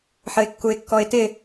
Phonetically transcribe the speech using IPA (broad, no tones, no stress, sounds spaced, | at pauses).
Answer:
ħ ə ɪ̯ kː u ɪ̯ kː ɔ ɪ̯ t ɪ